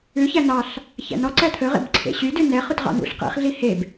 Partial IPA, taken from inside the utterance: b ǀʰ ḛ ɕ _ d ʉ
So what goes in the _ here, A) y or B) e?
A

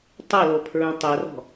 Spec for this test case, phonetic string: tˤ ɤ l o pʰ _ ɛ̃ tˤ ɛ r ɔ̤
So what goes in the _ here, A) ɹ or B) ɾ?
A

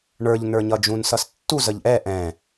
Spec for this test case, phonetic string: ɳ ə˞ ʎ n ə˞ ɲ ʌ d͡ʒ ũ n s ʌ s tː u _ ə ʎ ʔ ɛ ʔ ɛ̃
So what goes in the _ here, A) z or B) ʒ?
A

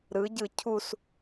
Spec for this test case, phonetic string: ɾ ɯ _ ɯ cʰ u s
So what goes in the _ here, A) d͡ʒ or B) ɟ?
B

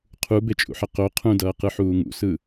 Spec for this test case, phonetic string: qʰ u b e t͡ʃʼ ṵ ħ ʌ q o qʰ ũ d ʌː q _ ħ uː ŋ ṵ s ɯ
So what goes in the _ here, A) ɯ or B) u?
A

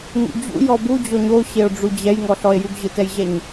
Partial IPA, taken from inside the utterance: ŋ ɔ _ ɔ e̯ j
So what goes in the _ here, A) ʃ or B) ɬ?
B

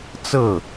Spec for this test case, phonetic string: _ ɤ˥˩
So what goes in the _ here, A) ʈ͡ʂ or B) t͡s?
B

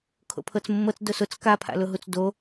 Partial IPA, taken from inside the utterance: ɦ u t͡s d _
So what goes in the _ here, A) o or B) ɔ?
A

